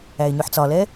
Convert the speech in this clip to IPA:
æ ɪ̯ ɲ ø ħ t͡s ɒ l ɛ

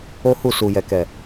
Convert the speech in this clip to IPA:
o˦ h u˦˨ s u˨ j ɛ˨ k ɛ˨

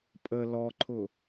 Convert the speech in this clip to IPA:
pʼ ə l ɔ ǃʰ ʊ

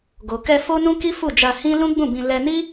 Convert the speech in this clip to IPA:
ɡ o˨ k ɛ˧ f o˦ n ũ˦ k i˦ f u˦˨ d͡ʒ a˧ h ĩ˦ l ũ˦ ɡ͡b ũ˦˨ b ĩ˧ l ɛ˧ n i˦

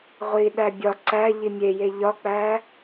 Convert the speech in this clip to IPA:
ʁʷ i ɗ æ bʲ ɒ ǀ æ ʎ i mʲ e j e ʎ ɒ k͡p æ

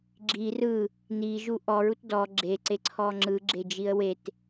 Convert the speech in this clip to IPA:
ɡ͡ǁ i r ɯ | n i ʒ u ʔ ɔ ɹ u t d ɔ ɡ͡ǁ e ǀ e ǀʰ ɔ ŋ͡ǁ ɯ ɡ͡ǁ e d͡ʒ i ə̯ w e t

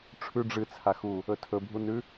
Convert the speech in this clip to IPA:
ʈ͡ʂʰ ʉ ɖ͡ʐ ɨ t͡sʰ a x u | ɵ tʰ ɵ bʱ u n ʉ

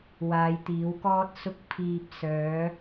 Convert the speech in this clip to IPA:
w aː˨˧ j t̪ iː˨˥ w k ɔː˥ t̚ s ʊ˧ k̚ pʰ iː˨ p̚ s œː˨˥

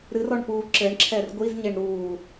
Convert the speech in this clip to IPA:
ɾ ɨ r ɔ ɳ p uː ǁ ɘ ɳ ǁʰ ɛ r ɡʷ i z ɲ e ɳ ɾ uː

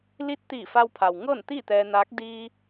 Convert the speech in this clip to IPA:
l i˧˥ t̚ t̪ iː˧˩ f a˧ w pʰ a˩ w ŋ ɤː˥˨ n t̪ iː˥˨ t̪ ɛː˧ n aː˧˥ k̚ d iː˧

